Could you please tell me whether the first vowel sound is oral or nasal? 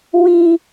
nasal